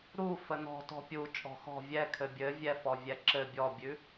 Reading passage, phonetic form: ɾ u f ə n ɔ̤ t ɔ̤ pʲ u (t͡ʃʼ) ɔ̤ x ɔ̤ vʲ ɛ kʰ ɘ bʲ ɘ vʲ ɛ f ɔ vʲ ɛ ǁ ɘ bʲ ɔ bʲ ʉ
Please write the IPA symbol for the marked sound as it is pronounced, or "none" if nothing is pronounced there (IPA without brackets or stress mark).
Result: t͡ʃʼ